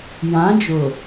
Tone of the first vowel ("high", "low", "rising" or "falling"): rising